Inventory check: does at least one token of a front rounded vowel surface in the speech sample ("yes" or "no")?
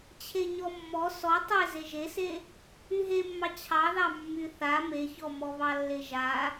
yes